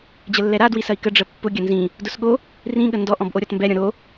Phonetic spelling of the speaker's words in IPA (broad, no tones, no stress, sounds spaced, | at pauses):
d͡ʑ ə lː ɛ ɾ a d w i s ɐ i̯ k ə ɖ͡ʐ ə pː ʊ ɡʲ ɐ n z ĩ | d ʊ s ɠ o | r ĩ ɠ ə n d ɔ ʔ ɔ̃ b ʔ o ɾʲ ɔ t m b ɛ ɾʲ ɔ̃ ɾ o